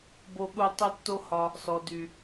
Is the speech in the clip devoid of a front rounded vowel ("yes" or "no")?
no